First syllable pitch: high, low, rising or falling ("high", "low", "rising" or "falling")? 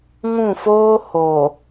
falling